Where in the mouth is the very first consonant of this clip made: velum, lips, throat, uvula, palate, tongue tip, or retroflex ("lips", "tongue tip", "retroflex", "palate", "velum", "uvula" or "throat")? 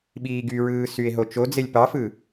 lips